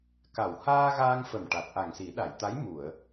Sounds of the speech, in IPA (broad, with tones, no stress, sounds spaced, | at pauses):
k a˨˩ w h aː˧ ɣ aː˧ ŋ f ə˨˩ m ʈ a˨˩ t̚ ʔ a˨˩ ŋ s i˨˩˦ ɗ a˨˩˨ j t̪ a˧˥ j m u˨˩˨ ə̯